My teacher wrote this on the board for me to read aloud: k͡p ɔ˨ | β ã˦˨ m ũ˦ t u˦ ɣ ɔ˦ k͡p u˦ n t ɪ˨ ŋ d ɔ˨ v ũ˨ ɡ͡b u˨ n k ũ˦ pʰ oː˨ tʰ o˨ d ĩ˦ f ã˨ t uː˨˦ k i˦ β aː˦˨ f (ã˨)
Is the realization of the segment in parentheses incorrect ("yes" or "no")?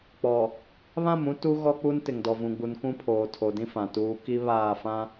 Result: yes